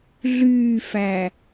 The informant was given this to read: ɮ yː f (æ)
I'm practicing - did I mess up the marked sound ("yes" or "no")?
no